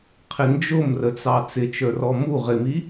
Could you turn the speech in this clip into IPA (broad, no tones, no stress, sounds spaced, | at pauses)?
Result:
qʰ ɪ n d͡ʒ ʊ m r ə t͡s ɑ t͡s ɪ t͡ʃ ə˞ r ɔ m u ʁ ɪ m i